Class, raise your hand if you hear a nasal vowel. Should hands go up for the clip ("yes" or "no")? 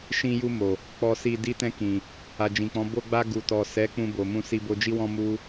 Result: yes